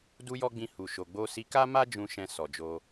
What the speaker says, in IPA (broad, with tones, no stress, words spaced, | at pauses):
du˧jɔ˧ ɡ͡bĩ˧hu˨ʃo˨ ɡ͡bo˧si˧ ka˦ma˦ d͡ʒũ˧ʃɛ̃˧ sɔ˨d͡ʒo˧